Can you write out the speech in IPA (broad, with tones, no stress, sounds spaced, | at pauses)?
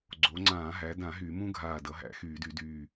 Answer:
ɡ͡ǀ o˩˧ ŋ͡ǀ ãː˧˩˧ ɦ æ˩˧ d ã˧˩˧ ɦ y˧˩˧ m ũ˥ ɡʱ aː˧˩ d ʌ˩˧ ɦ æ̰˧˩˧ x yː˧˩˧ d y˧˩˧ d yː˧˩